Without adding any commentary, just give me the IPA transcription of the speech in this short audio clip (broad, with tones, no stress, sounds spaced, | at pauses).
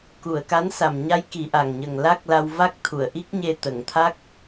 k u˨˩˨ ə̯ k a˧˥ n s a˨˩ m ɲ a˧˥ j k i˨˩˦ ʔ a˨˩ ŋ ɲ ə˨˩ ŋ l a˦˥ k̚ l a˧ w v a˦˥ k̚ t̪ʰ u˨˩˨ ə̯ ʔ i˦˥ k̚ ɲ e˧ t̪ ə˨˩˨ ŋ t̪ʰ a˦˥ k̚